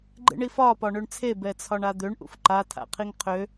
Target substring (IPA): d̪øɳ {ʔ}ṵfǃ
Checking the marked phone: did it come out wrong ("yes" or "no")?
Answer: no